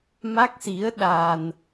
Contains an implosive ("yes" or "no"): yes